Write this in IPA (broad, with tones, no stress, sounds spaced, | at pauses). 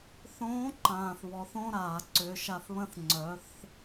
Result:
θ õː˧˥ ǃ ãː˩ θ β ɔ˩˧ θ õ˥ ɾ aː˩ ǀ ʏ˩˧ ʃ a˧ θ β ə̃˥ θ ŋ͡ǀ œ˩˧ θ